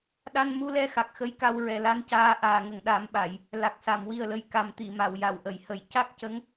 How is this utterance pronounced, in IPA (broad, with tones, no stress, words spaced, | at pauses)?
ɗa˧nmu˧lɛ˧˥ xa˨˩k̚xə˧˥jka˧w ɹɛ˨˩la˧˥ncaː˧ ʔaː˨˩ŋə˨˩ŋɗa˨˩˦mɓa˨˩˨j | la˨˩k̚sa˨˩˨mwi˨˩ə̯lə˨˩j ka˨˩mt̪i˨˩˨ ma˨˩˨wja˨˩˨wʔə˨˩˨jhə˨˩˦j ca˦˥k̚cə˧˥ŋ